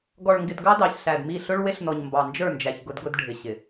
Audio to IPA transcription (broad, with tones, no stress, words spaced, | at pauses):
ɡɔ˨ɭŋɡɪ˨d ɡɑ˦dɑ˨çɬæ˨dmi˦˨ ɬʊ˦ɭ wɪ˦ɬnɔ˨ɲ mbɑ˨nd͡ʒə˞˦˨nd͡ʒæ˨ç ɡʊ˦dɡʊ˦dɖʱɪ˨ ɕɪ˨